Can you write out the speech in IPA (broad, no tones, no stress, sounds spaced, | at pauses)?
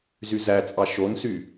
z y z æ t͡sʼ ɑ ʃ o n s y